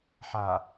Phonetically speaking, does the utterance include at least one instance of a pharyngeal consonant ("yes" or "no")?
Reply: yes